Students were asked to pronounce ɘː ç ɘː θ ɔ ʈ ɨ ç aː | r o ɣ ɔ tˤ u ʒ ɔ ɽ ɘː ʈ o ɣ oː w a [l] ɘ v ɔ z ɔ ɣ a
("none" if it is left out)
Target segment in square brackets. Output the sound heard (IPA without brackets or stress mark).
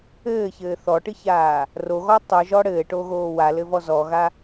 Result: l